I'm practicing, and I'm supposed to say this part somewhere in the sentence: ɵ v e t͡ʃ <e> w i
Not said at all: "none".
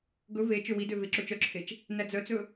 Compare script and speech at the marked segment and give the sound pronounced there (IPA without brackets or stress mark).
ø